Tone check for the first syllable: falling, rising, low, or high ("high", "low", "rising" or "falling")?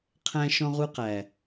high